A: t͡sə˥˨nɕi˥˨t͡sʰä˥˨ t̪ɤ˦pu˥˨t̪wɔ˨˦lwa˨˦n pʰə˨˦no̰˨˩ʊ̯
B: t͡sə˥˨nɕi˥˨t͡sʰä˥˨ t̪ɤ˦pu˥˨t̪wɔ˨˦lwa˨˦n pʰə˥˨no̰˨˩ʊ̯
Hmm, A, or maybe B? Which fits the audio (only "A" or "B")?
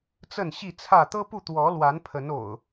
A